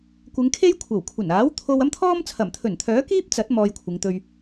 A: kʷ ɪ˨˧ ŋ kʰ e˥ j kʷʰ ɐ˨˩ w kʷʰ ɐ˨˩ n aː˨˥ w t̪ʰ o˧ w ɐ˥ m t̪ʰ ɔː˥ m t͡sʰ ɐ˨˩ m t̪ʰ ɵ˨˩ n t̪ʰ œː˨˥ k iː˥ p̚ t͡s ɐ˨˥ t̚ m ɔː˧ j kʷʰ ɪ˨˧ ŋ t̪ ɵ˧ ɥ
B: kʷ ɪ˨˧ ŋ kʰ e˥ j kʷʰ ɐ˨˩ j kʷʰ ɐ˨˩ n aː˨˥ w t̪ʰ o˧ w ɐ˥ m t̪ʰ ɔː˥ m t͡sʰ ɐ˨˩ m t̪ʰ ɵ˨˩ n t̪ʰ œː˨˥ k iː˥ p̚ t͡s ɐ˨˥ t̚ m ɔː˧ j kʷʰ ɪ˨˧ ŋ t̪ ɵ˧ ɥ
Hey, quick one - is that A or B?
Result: A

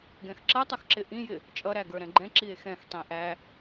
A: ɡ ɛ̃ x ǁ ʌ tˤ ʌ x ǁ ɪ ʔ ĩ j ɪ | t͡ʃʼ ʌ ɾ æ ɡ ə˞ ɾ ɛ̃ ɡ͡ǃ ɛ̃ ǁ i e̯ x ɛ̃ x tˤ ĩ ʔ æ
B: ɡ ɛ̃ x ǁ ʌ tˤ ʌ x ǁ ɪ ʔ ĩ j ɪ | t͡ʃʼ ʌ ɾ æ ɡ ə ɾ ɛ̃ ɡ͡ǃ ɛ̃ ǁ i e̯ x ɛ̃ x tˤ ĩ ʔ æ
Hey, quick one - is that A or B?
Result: A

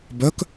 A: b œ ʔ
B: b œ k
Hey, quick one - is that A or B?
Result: B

